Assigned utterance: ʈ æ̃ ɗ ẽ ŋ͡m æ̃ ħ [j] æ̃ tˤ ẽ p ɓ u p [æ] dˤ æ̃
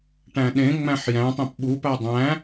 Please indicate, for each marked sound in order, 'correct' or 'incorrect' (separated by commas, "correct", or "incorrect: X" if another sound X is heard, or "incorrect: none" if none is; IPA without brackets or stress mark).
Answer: correct, correct